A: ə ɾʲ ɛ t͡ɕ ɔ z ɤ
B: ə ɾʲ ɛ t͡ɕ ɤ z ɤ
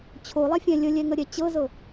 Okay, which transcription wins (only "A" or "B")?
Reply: B